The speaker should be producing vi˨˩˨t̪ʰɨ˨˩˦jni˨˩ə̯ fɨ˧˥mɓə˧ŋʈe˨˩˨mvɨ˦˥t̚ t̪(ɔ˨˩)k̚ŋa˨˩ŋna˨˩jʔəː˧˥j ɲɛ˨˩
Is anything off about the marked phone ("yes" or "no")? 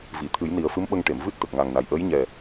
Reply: yes